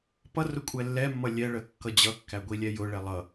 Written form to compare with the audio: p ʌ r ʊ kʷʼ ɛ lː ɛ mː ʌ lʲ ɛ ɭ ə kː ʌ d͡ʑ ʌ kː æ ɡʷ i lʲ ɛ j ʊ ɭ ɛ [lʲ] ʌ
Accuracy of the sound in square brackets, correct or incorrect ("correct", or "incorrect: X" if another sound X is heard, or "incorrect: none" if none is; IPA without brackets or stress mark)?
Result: incorrect: lˠ